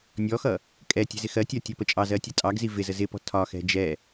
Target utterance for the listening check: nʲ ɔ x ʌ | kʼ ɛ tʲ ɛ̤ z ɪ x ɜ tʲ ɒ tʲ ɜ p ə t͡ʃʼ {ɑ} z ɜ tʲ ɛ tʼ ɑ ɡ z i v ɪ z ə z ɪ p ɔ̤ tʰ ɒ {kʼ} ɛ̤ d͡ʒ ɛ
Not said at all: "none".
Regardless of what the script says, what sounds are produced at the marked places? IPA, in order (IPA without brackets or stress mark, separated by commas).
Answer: ɑ, x